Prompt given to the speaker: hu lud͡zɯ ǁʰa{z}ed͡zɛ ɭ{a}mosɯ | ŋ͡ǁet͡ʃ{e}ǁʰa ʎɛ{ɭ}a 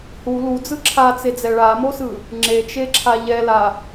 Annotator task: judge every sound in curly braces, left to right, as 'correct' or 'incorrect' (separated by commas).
incorrect, correct, correct, incorrect